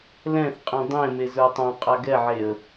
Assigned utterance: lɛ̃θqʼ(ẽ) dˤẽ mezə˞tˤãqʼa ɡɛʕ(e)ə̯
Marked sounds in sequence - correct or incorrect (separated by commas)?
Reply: incorrect, correct